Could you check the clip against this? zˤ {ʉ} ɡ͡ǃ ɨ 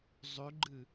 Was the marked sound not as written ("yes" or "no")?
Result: no